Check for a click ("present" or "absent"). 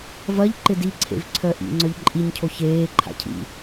present